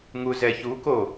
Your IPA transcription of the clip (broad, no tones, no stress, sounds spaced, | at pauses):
ŋ u z ɛ ç u k o